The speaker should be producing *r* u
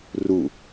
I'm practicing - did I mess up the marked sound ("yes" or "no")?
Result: no